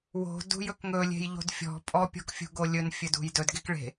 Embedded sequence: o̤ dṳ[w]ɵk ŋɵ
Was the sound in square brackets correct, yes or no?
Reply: no